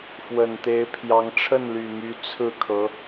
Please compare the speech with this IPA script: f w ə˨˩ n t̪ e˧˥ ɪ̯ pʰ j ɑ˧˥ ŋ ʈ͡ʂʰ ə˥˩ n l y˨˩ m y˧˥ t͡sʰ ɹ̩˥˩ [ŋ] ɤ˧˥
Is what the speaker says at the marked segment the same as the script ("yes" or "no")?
no